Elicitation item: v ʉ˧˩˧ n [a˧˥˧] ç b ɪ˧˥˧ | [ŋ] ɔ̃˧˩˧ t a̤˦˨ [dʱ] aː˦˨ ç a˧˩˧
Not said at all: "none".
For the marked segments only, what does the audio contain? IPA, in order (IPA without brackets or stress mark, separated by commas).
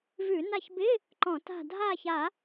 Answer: a˦˨, ǃ, dʱ